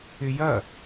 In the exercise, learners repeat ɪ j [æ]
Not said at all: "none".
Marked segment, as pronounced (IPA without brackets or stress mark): ɐ